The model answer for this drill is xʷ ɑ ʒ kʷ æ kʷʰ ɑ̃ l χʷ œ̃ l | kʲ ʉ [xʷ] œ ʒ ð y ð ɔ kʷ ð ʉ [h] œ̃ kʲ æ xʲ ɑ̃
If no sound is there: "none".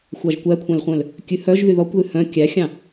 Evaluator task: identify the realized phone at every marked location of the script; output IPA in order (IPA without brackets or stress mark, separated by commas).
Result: h, h